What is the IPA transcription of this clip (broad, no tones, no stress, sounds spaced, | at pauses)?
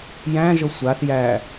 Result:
j æ̃ ʒ ɤ sʷ a θ j æ